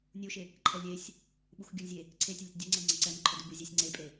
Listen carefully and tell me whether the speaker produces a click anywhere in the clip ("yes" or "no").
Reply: yes